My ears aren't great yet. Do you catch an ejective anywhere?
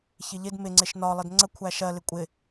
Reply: yes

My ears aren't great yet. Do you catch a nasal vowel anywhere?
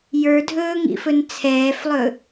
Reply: no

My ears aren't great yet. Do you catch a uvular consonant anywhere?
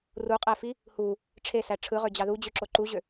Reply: yes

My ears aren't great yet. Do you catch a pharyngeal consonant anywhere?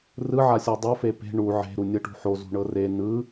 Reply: yes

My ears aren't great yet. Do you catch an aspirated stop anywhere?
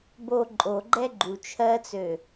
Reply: yes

